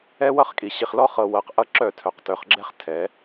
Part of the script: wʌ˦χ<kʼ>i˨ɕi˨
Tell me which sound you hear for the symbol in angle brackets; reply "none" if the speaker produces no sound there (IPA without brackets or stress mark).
kʼ